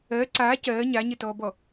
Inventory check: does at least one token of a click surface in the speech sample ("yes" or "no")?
yes